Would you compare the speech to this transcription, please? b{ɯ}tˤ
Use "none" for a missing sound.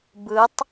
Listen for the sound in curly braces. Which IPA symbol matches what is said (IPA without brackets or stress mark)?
ɯ